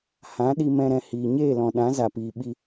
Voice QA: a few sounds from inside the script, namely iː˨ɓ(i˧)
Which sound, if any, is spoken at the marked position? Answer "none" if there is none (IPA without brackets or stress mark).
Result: i˧